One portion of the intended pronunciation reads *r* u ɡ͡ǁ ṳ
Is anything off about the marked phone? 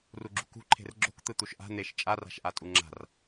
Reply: no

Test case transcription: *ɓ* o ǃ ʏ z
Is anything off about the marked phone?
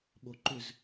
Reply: no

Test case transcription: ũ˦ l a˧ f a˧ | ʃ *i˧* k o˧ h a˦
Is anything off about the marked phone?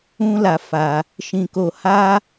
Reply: yes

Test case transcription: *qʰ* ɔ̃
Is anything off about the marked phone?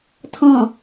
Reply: yes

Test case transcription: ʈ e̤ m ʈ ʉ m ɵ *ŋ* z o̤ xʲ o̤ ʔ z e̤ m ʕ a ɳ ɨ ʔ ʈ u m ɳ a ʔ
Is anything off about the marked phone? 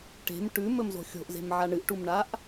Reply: yes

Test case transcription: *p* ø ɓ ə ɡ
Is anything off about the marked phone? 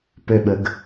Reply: no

